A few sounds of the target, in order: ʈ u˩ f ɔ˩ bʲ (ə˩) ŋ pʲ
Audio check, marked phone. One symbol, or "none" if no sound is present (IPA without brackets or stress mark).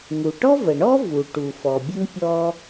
ə˥